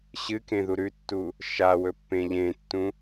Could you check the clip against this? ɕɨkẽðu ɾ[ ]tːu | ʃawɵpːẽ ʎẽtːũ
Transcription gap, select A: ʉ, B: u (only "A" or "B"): A